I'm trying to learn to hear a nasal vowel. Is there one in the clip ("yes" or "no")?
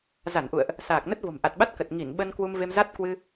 no